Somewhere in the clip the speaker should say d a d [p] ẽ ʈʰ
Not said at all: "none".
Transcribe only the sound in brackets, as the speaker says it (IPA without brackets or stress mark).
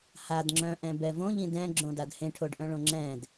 h